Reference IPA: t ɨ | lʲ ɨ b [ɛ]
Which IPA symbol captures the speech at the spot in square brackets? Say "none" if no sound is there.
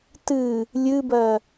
ɜ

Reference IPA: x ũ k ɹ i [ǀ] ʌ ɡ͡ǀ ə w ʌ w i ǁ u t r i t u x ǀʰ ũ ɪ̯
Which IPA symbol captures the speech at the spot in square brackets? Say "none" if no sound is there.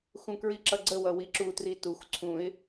ǁ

